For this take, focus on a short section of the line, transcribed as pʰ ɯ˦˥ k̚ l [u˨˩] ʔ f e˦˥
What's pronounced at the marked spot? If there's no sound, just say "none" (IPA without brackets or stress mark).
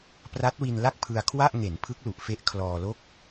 u˨˩